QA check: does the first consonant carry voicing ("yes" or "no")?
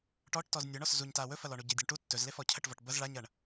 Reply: no